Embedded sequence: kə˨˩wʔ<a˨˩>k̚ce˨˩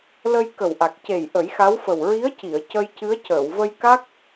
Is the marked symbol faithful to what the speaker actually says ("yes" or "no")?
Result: yes